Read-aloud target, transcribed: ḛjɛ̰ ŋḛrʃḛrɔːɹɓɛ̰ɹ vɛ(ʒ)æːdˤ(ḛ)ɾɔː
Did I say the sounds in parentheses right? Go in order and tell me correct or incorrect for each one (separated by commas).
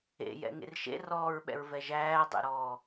correct, correct